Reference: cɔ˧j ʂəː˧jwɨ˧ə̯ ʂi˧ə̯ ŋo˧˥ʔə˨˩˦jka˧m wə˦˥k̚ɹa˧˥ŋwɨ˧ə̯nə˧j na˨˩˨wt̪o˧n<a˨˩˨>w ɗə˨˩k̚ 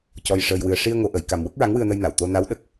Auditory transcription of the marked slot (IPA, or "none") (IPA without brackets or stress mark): a˧˥